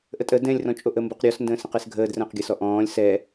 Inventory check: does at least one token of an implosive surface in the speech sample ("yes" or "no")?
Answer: no